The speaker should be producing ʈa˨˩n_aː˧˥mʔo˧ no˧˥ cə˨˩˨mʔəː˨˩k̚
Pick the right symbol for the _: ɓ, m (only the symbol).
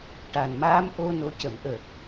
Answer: m